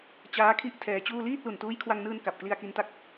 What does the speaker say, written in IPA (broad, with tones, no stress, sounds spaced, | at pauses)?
t͡ɕ aː˦˥ kʰ i˦˥ ʔ tʰ ɛː˧ t͡ɕ uː˥˩ l iː˥˩ t̚ l u˨˩ n t uː˦˥ j kʰ w a˧ ŋ n ɯː˧ n k a˨˩ p̚ k l i˧ a̯ k i˧ n t a˥˩ k̚